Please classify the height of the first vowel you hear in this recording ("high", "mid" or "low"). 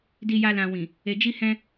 high